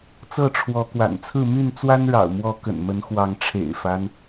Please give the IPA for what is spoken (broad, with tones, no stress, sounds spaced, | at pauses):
t͡s ɤ˥˨ ʈ͡ʂʰ w ɔ˨˦ k w a̰˨˩ n t͡sʰ ɹ̩˥˨ m y˥˨ n t͡s w a˦ n ɻ ɑ̰˨˩ ʊ̯ m w ɔ˨˦ k ə̰˨˩ n m ə˨˦ n x w ɑ˨˦ ŋ ʈ͡ʂʰ ḛ˨˩ ɪ̯ f a˦ n